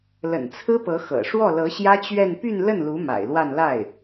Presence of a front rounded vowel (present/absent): present